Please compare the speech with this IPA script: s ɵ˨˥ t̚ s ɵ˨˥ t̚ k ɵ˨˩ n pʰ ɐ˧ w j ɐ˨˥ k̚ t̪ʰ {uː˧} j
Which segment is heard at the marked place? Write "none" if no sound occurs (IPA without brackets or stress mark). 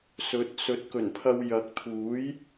uː˨˥